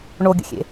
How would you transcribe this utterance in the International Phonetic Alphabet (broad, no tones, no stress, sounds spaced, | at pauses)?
ɳ o ɡʲ ə̰ xʲ ḛ